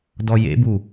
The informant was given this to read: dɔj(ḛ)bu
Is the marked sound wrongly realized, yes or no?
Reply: no